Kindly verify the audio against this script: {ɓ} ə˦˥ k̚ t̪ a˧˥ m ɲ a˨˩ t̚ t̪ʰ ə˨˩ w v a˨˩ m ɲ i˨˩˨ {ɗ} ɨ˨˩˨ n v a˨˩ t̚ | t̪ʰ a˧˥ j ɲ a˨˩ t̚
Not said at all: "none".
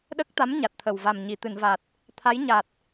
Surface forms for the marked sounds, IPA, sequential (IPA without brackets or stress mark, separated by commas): ɗ, t̪